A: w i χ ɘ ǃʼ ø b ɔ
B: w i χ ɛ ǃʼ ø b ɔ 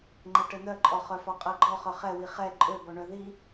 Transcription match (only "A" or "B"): B